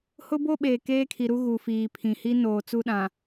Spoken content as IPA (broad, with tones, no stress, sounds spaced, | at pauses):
h ʊ˦ b o˦ ɓ eː˨ k eː˦ kʰ i˨ ɾ u˦ ɣ u˨ f iː˨ pʰ ĩ˨ h i˦ n oː˨ t͡s u˦ ɗ ã˨